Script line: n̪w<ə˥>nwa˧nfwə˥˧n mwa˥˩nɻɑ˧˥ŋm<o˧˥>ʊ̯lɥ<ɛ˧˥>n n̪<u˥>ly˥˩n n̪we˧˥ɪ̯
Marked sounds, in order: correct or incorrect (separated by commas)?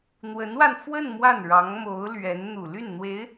incorrect, correct, correct, incorrect